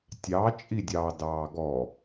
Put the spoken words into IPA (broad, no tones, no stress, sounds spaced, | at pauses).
tʲ ɑ t͡ʃʼ i dʲ ɑː d ɑː ɡ ɔ